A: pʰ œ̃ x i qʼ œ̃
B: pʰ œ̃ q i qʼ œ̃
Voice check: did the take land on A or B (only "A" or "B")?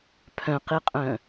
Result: B